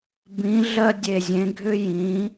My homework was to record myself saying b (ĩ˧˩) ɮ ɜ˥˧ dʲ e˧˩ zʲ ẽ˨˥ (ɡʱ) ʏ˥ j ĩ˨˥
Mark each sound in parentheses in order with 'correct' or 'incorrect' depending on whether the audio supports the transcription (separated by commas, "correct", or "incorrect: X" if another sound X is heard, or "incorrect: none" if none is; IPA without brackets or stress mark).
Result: incorrect: ĩ˨˥, correct